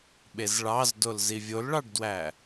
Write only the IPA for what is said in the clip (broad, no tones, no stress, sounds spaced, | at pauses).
ɓ e z ɭ ɑ z d o l z i vʲ o l ɭ ɑ ɖ d w æ